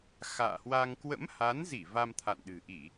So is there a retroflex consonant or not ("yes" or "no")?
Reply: no